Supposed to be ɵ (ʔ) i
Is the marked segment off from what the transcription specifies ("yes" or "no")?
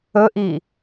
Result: no